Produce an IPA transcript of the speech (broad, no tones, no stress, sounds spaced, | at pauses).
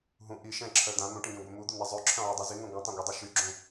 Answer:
ɦ ũ ʔ i ʃ ɛ̃ ǁʰ œ d̪ ã n̪ ũ ʈ ĩ ɡ ɛ̃ ɡʷ ɛ m u d̪ u n̪ a zˤ ø ǁʰ œ̃ ʕ ø dˤ y z i ŋ œ̃ ɡʷ œ̃ tˤ ã ɡʷ ɛ dˤ u ʃ y ɡ͡ǁ ũ